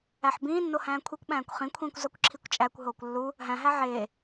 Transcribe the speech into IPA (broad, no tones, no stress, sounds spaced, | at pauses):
æ ħ b ĩː nː o h æ̃ː kʷʰ i kʷ ɓ æ̃ː kʷ χ ĩ kʷʰ ĩː kʷ z ɒ kʷ ǁʰ i kʷ t͡ʃʼ æ kʷ ɦ oː kʷ lː u | ɦ æ̃ ɦ æ ʕ eː